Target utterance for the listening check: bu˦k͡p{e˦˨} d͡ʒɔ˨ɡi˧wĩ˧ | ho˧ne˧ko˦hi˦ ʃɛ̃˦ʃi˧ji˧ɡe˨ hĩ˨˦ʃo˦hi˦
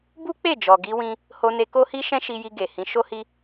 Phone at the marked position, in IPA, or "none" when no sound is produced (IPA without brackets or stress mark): e˦˨